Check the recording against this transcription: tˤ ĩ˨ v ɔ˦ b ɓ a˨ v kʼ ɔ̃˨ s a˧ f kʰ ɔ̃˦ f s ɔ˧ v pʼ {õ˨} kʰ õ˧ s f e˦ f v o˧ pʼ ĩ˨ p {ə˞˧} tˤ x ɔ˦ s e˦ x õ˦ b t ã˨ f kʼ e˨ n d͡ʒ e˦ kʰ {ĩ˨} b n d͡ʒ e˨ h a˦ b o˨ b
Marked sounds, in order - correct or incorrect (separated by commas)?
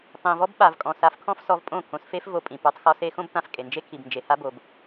incorrect, correct, incorrect